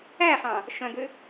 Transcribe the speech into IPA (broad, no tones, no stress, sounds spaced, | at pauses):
æ χ ɑ̃ | ʃ œ̃ ɡ ø